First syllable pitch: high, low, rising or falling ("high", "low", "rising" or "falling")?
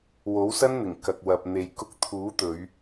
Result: rising